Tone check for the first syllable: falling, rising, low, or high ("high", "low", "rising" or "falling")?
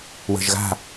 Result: low